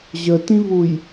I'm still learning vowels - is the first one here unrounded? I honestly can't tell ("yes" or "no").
yes